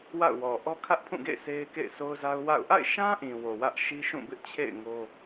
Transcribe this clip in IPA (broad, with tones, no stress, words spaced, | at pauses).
wa̰˦˨ʊ̯wɔ˨ ʔɔ˦kʰä˦ʔpʰũ˦˨ɡḛ˦˨ɪ̯ sʰe˦ɪ̯kḛ˦˨ɪ̯so˦ʊ̯za˦ʊ̯ wa̰˦˨ʊ̯ ʔa̰˦˨ɪ̯ʃã˦ ʔĩ˨wo˨wä˦ʔ ʃi˦ʃũ˦˨bɪ˦ʔt͡ɕʰḛ˦˨ɪ̯ ŋo˦